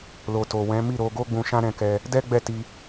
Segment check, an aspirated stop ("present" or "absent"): absent